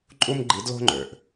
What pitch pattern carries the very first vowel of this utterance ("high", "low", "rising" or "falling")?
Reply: high